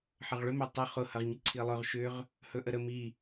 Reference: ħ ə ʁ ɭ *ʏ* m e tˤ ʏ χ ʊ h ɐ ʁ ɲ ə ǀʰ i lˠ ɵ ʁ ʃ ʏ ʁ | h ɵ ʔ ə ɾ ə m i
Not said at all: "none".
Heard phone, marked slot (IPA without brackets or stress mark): ʏ